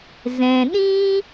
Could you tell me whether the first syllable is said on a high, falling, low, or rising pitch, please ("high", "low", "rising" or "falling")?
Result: low